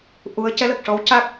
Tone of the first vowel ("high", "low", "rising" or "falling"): rising